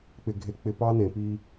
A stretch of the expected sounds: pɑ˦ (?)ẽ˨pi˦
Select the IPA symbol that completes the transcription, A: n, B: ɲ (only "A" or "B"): A